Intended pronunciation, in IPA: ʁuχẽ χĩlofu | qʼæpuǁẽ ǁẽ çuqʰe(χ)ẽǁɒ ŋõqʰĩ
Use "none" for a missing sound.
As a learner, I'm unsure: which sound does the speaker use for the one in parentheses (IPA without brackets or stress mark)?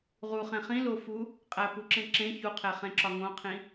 χ